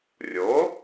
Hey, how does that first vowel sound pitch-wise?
rising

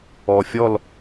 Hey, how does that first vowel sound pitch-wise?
low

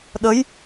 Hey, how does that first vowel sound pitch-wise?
rising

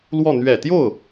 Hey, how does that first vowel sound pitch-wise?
falling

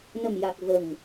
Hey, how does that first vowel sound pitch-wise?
low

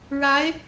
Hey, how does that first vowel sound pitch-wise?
rising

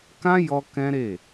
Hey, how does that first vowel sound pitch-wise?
high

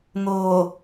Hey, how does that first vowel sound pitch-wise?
low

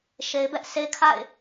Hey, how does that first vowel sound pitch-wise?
low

